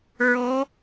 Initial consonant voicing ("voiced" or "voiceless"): voiced